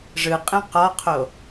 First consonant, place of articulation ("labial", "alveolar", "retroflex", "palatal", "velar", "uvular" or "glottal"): retroflex